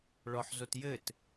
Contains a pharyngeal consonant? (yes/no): yes